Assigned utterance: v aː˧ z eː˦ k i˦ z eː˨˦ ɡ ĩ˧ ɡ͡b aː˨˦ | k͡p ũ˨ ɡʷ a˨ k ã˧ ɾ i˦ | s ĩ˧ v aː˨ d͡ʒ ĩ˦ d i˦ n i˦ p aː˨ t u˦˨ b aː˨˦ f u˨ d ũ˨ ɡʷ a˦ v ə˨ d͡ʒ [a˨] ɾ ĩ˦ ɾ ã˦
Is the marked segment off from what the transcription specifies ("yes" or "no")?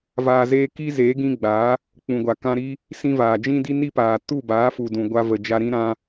yes